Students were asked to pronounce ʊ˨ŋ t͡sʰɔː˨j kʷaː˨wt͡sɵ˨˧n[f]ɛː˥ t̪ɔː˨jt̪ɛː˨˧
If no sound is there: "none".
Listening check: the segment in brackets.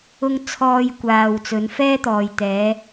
f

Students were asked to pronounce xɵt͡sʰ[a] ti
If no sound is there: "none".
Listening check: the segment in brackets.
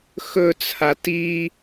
a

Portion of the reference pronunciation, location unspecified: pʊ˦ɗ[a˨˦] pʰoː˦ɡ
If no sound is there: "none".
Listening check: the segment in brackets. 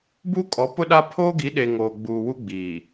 a˦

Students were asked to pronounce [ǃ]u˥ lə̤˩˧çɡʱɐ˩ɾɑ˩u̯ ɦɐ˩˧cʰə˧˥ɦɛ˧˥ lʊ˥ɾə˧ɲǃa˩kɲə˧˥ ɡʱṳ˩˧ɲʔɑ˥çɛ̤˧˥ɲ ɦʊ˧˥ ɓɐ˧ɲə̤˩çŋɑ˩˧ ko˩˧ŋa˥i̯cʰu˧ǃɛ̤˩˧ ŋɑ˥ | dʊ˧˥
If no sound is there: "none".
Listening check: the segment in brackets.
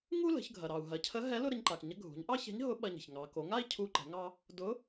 ŋ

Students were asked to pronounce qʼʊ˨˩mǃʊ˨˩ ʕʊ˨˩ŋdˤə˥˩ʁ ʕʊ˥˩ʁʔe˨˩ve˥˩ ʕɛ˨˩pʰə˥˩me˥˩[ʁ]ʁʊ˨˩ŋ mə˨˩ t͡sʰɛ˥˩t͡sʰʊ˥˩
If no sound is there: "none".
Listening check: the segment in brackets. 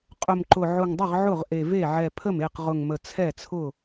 q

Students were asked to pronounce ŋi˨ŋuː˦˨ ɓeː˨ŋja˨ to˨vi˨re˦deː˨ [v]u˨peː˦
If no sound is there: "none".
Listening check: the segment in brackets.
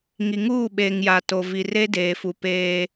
f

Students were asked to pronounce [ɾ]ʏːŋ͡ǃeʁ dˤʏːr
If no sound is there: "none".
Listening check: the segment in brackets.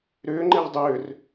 ɾ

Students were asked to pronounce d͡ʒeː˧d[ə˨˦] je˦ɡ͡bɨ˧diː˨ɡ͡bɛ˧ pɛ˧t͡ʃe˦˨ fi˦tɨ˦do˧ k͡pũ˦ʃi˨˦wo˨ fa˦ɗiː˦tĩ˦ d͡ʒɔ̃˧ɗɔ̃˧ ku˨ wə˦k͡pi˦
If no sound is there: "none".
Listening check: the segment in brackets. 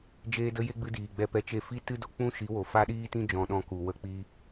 ə˧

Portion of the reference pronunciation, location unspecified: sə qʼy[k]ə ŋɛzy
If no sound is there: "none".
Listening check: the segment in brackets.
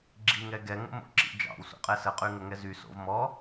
ŋ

